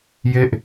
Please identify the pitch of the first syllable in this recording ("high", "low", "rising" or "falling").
falling